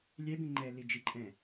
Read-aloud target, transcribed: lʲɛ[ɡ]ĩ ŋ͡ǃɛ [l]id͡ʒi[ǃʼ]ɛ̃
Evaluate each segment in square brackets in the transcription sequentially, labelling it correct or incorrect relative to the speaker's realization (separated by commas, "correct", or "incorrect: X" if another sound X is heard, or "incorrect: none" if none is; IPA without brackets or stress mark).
incorrect: b, correct, correct